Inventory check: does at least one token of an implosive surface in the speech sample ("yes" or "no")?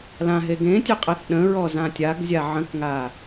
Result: yes